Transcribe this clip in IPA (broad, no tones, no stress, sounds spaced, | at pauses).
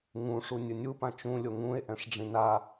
ŋ ũ ʂ u nʲ ɯ nʲ u p ã t͡ʃ ũ lʲ o ŋ ũ e̯ ʔ ɛ̃ ʂ ɖ͡ʐ ĩ n a